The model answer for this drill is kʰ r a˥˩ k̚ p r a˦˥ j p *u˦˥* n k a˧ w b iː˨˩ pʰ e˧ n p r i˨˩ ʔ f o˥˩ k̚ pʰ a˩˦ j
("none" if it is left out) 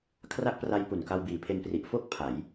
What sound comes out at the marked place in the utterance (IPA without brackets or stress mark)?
u˨˩